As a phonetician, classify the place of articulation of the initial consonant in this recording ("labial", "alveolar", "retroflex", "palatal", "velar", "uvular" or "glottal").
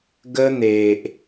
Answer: velar